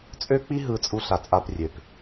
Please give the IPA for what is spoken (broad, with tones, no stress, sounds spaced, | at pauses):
t͡sʼ ø˦ k͡p i˦ ɦ ɯ˨ t͡sʼ u˦ ɬ a˨ t͡sʼ a˦ p rʲ ø˨ p